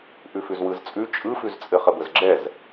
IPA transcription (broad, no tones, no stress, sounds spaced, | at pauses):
ʔ ʉ f ʉ z w ɯ z t͡sʼ ʉ t͡ʃʼ ɯ f ʉ z t͡sʼ ɘ χ ə b ə z ɡ͡ǁ ɛ z